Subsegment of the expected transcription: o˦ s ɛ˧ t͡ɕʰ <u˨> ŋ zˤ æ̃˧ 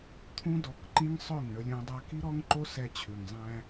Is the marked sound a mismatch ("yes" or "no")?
yes